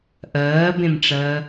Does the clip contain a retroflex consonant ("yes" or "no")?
yes